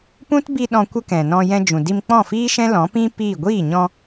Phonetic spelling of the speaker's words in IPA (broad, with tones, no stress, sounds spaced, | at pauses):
p ũ˦ t b i˧ ɗ ɔ̃˧ kʷ ə˦ k ɛ̃˨ n ɔ̃˧ j ɛ̃˧ d͡ʒ ũ˨ d i˧ m k͡p ɔ̃˦˨ f iː˦ ʃ ɛ̃˦ l ɔ̃˨˦ p ĩ˦ p iː˦˨ ɡʷ iː˦˨ ɲ ɔ̃˧